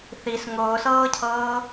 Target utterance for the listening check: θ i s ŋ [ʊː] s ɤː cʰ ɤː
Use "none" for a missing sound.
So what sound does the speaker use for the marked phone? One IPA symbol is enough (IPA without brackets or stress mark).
ʊː